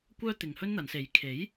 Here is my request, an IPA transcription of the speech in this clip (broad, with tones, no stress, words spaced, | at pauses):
kʷœː˥ t̪ɪ˨ŋhɵ˥nn̪ɐ˨˧nse˨˥j kʰe˨˥j